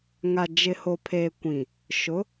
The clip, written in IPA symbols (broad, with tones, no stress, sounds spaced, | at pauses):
ŋ a˨ d͡ʒ ɪ˨ h o˨ pʰ eː˨ kʷ ĩ˨ | ʃ ʊ˨˦